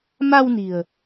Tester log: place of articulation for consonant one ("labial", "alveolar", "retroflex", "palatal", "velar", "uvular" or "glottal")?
labial